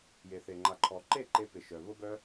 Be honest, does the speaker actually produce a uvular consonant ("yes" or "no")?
no